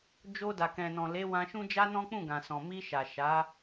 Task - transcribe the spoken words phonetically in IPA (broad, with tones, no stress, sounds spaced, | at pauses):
d͡ʒ o˧ d a˨ k ɛ̃˨ n ɔ̃˨ l e˨˦ w ã˧ ʃ ũ˦ d͡ʒ a˦ n ɔ̃˦ k͡p ũ˦˨ ɡ ã˨ s ɔ̃˨ m i˧ ʃ a˨ ʃ a˨˦